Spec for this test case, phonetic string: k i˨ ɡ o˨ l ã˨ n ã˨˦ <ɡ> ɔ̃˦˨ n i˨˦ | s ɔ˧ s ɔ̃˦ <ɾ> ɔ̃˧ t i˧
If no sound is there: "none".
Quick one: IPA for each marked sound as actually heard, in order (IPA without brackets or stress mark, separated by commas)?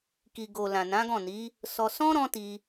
ɡ, ɾ